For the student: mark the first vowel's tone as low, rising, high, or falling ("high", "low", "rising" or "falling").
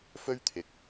high